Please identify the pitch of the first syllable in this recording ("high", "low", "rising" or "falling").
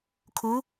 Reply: rising